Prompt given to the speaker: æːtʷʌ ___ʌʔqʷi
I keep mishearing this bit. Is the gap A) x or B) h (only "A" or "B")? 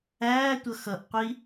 A